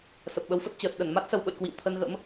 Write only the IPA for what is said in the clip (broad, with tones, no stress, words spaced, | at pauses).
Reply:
sə˨˩p̚ɓə˨˦wfə˦˥t̚ t͡ɕəː˨˩t̚ ɗə˧˩nma˦˥t̚ sə˧wɓə̰˧˨j kwḭ˧˨wt̪ʰə˧nɣə̰˧˥m